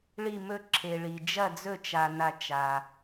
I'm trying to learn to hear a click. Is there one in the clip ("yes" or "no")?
yes